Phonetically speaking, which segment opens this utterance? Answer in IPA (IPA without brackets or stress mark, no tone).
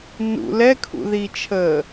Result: n